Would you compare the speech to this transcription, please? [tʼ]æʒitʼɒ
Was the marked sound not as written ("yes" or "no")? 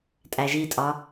no